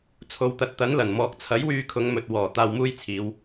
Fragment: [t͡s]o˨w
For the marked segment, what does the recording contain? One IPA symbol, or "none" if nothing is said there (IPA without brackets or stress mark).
t͡sʰ